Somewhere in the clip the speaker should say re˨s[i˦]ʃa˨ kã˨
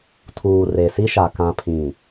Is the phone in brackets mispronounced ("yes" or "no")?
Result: no